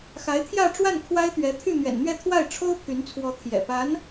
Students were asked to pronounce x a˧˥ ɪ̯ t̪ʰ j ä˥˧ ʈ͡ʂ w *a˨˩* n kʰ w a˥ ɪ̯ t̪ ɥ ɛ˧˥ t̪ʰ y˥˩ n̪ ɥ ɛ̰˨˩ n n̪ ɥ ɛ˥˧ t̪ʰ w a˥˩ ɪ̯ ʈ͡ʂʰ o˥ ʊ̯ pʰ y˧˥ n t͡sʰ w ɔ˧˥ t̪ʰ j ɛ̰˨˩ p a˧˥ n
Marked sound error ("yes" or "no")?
yes